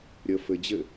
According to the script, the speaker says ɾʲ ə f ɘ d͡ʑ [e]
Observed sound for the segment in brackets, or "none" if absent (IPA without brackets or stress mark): ɘ